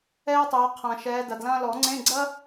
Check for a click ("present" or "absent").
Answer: present